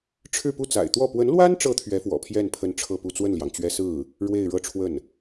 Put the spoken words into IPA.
ʈ͡ʂʰɻ̩˥˧pu˥˩t͡sa̰˨˩ɪ̯t̪wɔ˥˩ pwə˧˥nlwa˥nʈ͡ʂɤ˧˥ t̪ʰɥɛ˧˥fwɔ̰˨˩pʰjɛ˥˩n pʰə˥nʈ͡ʂʰɤ˥˧pu˥˧ t͡swə˥˩nljɑ˩ŋ t͡ɕɥɛ˥ sɹ̩˥˩ | ɻwe˥˧ɪ̯ɻɤ˥˧ ʈ͡ʂʰwə˥˩n

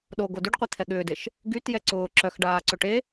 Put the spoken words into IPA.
ɗoɡo dyɖqʷit̪ʰɛ ɠʏːdeʃ | ɡytjɛ ǀʊː ǁœxɖaːǀʏ ʈe

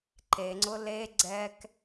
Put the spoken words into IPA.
ǃeŋ͡ǀʊ le ɡ͡ǀɛk

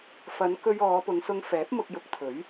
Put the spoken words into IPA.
fɐ˨˧n kɵ˧ɥ ɔː˨˧pʊ˨˧ŋsʊ˧ŋ fɛː˨˥p̚mʊ˧k̚jʊ˨˥k̚t̪ʰɵ˨˥ɥ

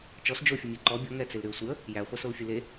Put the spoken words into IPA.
t͡ʃɔs d͡ʒofʲɨmʲe ǃɔ bʲɔŋɛt͡selɾyə̯ sʷɨə̯ | jæχʷasolfʲɨ le

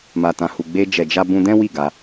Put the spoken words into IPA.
ma˨ tã˨hu˨ɡ͡be˧ d͡ʒɛ˨d͡ʒa˧bũ˧dɛ̃˦ wi˦˨ ɡa˧

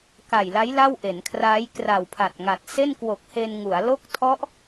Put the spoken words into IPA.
ka˨˩jla˦˥j la˥˩wʔe˩˦nkʰraː˦˥j kra˨˩wpʰa˨˩t̚ŋa˨˩t̚ se˥˩nkwo˨˩k̚ he˧nŋu˩˦a̯ lo˦˥k̚tʰɔ˦˥ʔ

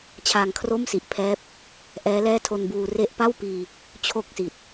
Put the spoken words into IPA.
t͡ɕʰaː˧ŋkʰro˥˩msi˨˩ʔpʰɛː˦˥p̚ | ʔɛː˦˥lɛː˥˩tʰo˧nbuː˧ re˦˥ʔpa˥˩w piː˧ | t͡ɕʰo˥˩k̚si˨˩t̚

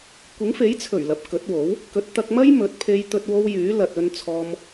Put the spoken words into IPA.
kʷɪ˨˥ŋfe˨˥jt͡sʰɵ˨˩ɥ lɐ˨p̚kɵ˨˥t̚wo˨˥w | kɵ˨˥t̚ t̪ɐ˧k̚mɐ˥j mɵ˨˥t̚pʰe˧jt̪ɵ˧t̚ wo˧w jyː˨˥lɐ˨t̚ ɵ˧nt͡sʰɔː˧m

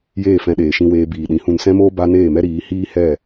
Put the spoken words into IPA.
jeː˦˨fɛ̃˧ɗeː˨ʃĩ˧ weː˧biː˨ɗĩ˨˦ hũ˧nsɛ̃˦moː˦ ba˦ neː˦˨mɛ˦ɾiː˨˦ hiː˦ hɛ˦˨

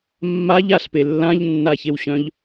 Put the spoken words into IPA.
mːaʎ aɬpe lːãʎnːaçewɕœ̃ʎ

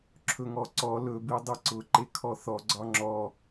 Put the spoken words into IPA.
ǁʰɵŋɔǀɔ lɵ bidˤeǀʊ ǃekʰɔθɔ ɡ͡ǀɒŋ͡ǁɔ

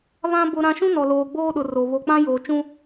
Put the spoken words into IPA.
βã˦ bʊ˦ɾã˦ ʃũ˦nɔ˨loː˨ ɡ͡boː˦ɗʊ˨ ro˨ βo˨k͡pã˦ joː˨t͡ʃũ˦

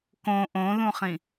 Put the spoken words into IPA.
kõ ʔõðũχĩ

